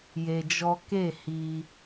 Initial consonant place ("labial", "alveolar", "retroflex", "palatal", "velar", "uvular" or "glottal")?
palatal